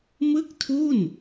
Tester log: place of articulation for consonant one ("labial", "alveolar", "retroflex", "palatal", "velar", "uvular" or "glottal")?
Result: labial